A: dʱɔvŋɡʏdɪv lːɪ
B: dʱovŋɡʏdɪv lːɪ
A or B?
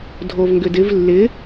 B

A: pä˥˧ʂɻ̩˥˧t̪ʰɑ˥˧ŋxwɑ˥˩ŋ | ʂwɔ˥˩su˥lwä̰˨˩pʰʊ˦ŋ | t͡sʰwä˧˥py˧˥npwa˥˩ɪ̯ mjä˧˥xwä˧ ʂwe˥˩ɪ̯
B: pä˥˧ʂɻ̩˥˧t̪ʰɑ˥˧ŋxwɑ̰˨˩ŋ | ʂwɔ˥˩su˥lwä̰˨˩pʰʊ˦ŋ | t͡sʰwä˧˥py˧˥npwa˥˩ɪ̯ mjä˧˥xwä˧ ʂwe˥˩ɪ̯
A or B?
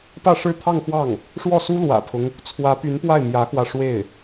A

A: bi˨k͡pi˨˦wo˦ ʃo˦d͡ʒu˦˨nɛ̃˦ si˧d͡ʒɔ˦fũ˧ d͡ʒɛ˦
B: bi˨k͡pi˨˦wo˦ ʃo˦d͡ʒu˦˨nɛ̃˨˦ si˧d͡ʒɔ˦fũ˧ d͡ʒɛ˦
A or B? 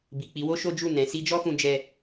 B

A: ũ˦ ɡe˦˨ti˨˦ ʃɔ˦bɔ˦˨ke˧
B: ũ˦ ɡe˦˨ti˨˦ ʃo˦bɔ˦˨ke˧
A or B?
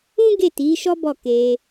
A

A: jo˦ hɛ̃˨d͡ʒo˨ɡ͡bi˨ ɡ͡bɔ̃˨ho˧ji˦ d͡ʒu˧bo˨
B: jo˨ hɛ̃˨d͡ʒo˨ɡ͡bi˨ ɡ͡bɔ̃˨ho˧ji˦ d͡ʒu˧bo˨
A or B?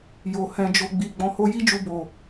B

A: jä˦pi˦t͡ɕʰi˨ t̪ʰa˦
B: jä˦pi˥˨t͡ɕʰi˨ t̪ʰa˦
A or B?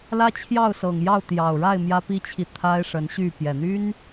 A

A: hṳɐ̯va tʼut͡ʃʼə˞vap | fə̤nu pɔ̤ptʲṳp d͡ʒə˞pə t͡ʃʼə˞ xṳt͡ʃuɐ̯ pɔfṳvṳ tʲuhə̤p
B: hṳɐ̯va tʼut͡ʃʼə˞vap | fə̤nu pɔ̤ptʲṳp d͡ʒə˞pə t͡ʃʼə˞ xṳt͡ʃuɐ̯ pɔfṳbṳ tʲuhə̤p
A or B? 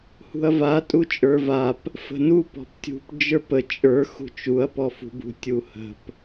B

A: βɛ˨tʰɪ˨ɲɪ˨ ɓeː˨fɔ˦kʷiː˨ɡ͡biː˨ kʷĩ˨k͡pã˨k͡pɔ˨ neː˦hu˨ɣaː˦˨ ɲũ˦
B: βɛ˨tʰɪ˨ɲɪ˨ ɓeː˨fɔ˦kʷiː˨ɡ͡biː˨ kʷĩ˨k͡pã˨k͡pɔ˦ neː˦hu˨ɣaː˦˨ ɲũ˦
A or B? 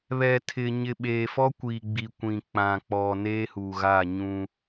A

